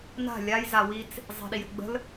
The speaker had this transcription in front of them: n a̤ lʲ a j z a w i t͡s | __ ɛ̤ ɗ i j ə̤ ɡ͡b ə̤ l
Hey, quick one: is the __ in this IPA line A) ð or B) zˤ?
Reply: B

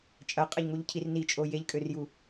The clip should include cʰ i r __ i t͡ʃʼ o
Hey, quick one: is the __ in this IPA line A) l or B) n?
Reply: B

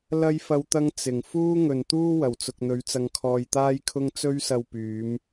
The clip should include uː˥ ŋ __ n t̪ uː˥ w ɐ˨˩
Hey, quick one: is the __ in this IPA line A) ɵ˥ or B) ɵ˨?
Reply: B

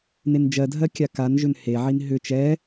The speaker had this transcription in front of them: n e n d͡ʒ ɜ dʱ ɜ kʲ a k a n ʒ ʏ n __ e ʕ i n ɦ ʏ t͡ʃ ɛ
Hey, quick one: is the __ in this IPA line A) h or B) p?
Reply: A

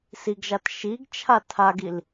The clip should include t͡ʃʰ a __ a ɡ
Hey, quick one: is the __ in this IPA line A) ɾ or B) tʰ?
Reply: B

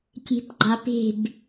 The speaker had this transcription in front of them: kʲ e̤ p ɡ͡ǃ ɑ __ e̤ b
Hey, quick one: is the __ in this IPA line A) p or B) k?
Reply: A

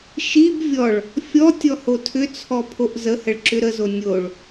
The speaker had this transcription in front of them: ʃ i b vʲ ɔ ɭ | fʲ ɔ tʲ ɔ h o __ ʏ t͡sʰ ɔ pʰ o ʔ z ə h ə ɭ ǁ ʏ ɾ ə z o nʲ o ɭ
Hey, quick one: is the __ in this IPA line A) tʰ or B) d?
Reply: A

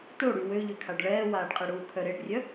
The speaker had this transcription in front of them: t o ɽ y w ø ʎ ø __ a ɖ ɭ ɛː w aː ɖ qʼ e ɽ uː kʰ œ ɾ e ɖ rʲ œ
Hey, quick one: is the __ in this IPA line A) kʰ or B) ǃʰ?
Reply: A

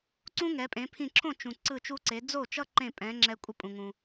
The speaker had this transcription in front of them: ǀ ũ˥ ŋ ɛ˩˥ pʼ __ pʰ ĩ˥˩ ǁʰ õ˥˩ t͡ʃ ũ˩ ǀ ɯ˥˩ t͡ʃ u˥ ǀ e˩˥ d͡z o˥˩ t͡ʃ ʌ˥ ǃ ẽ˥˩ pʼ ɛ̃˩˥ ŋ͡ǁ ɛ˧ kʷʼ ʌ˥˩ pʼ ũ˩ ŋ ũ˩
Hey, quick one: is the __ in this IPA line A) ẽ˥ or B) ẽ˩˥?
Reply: B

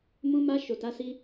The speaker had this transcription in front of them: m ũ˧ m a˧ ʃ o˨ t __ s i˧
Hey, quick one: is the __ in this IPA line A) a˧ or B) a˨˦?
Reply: B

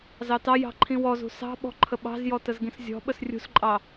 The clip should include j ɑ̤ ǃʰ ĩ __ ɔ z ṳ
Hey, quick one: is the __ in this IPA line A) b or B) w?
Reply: B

